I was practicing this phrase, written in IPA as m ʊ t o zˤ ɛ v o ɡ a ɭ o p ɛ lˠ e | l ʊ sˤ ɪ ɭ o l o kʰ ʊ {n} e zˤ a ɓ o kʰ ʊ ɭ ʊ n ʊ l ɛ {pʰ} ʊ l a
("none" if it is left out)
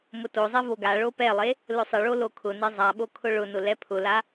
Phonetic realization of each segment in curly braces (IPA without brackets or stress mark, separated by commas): n, pʰ